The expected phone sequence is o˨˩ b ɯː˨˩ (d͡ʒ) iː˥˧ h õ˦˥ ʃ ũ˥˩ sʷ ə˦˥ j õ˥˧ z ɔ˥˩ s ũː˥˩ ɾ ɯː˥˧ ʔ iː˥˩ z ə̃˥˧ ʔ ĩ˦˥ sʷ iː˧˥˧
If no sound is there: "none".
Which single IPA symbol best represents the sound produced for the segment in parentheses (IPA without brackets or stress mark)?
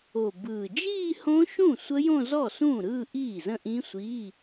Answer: d͡ʒ